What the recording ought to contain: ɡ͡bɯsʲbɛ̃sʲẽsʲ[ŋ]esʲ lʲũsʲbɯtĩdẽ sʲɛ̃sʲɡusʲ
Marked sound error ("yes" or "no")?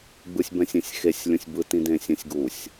yes